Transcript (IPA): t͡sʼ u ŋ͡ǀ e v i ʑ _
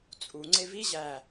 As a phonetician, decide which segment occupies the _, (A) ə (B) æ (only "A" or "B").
B